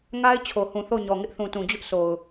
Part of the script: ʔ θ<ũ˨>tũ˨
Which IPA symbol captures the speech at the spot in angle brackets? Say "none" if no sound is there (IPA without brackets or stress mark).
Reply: ũ˨